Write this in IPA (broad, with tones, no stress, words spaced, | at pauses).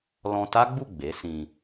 lɔ̃˧ta˦ɡ͡bu˦˨ ɡ͡be˨˦sĩ˧